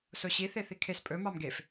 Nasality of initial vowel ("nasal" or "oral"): oral